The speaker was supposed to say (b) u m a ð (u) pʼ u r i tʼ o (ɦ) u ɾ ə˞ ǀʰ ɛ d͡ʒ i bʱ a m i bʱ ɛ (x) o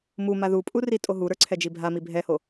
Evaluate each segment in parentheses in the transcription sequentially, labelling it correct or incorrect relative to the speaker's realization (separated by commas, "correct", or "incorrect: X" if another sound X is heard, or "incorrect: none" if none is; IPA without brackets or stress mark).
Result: incorrect: m, correct, correct, incorrect: h